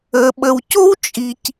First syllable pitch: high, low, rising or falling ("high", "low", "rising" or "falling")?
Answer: low